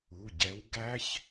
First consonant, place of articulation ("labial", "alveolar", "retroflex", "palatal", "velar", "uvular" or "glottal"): palatal